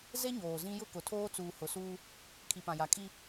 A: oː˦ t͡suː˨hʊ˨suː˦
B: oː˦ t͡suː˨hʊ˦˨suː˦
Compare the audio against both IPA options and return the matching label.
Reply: A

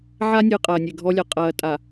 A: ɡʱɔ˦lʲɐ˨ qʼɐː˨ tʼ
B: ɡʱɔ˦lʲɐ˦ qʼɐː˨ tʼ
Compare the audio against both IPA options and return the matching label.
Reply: A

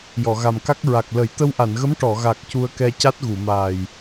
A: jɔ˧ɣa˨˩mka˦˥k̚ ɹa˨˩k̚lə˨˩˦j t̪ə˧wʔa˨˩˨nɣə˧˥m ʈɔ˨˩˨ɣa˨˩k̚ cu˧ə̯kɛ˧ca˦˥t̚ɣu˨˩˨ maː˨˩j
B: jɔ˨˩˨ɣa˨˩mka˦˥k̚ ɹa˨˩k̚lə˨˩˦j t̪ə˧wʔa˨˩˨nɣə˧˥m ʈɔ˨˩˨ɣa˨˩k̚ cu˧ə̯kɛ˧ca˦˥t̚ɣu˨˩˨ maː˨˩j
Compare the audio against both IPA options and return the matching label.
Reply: B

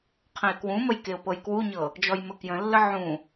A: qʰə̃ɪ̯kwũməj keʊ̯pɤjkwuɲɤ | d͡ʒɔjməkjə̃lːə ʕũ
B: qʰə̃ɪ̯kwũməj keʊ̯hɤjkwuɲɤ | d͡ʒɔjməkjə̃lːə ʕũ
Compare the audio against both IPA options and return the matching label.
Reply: A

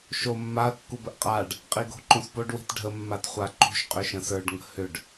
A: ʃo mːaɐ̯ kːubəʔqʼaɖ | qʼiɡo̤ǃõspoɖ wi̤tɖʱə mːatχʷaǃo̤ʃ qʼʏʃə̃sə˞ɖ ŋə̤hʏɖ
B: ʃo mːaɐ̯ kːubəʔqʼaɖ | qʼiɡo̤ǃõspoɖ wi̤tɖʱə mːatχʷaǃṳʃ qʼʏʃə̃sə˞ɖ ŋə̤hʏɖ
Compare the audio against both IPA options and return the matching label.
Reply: B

